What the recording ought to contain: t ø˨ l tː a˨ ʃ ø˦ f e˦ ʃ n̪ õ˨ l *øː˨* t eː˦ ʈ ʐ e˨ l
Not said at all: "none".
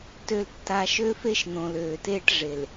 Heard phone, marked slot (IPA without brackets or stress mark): øː˨